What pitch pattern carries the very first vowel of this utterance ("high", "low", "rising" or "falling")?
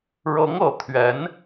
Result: rising